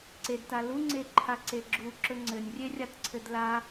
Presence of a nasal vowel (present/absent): absent